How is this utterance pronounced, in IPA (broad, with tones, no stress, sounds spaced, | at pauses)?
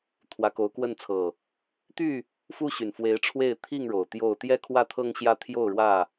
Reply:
t̪ʰ w ä˨˦ k o˨˦ ʊ̯ k w ə˥˨ n t͡sʰ ɤ˨˩ | t̪ y˥˨ | f u˦ ɕ y˨˩ n f w e˨˦ ɪ̯ ʈ͡ʂʰ w e˥˨ ɪ̯ t̪ʰ i˥˨ ŋ ɻ o˨˩ ʊ̯ t̪ j o˥˨ ʊ̯ t̪ j ɛ˥˨ kʰ w ä˥˨ t̪ʰ ɤ˦ ŋ ɕ j ä˦ t̪ʰ j o˥˨ ʊ̯ ɻ w ä˥˨